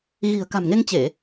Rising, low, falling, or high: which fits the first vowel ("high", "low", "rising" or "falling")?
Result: low